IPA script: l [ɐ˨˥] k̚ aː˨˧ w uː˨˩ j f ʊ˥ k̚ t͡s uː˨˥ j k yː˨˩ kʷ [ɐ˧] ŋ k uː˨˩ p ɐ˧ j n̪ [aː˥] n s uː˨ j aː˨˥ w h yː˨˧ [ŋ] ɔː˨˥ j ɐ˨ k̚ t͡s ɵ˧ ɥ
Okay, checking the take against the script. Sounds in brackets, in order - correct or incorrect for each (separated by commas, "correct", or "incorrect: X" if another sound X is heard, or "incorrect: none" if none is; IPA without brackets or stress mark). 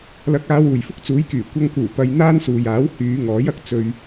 correct, correct, correct, correct